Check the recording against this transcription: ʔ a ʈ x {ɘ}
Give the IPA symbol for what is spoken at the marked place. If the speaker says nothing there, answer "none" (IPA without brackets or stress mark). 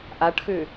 ʉ